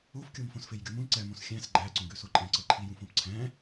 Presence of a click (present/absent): present